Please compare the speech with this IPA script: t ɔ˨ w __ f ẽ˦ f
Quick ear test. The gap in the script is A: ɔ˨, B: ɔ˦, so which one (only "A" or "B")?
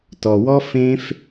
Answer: B